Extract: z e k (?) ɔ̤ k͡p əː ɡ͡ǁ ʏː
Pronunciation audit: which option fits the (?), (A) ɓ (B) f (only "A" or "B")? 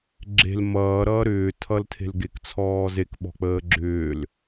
A